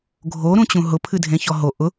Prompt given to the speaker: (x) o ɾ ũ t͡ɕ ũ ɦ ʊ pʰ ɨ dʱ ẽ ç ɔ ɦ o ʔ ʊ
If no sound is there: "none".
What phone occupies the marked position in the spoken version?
ɡʱ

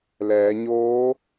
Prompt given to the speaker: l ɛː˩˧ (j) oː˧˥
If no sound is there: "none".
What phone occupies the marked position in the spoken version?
ɲ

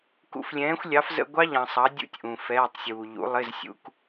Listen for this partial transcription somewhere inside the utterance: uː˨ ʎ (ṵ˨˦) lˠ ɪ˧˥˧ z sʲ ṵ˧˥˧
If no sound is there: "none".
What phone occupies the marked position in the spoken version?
ṵ˨˦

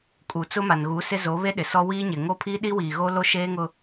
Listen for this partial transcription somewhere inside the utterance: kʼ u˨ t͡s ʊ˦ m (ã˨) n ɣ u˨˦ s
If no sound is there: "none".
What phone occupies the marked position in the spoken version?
a˨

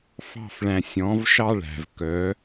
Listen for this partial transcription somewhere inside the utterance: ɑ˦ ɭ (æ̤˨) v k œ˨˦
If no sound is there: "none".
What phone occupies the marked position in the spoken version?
æ̤˨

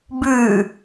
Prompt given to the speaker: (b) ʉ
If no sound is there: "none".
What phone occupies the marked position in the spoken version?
b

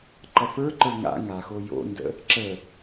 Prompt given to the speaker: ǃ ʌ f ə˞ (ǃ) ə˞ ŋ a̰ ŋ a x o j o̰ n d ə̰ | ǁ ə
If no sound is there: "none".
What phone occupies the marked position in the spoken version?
ǃ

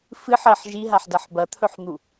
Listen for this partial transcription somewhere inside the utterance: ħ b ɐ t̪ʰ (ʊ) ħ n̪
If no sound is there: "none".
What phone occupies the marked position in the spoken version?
ɵ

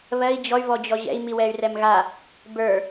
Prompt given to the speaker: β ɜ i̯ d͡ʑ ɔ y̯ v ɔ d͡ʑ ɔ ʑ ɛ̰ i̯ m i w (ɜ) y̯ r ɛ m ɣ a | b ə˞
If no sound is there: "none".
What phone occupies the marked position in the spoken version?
ɛ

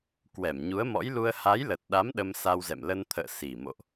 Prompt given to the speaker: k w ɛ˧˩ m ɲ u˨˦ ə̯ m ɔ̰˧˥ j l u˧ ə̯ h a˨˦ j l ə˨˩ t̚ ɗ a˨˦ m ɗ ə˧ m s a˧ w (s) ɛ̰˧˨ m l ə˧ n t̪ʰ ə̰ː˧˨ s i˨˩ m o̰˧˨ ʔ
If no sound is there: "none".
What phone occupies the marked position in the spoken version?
z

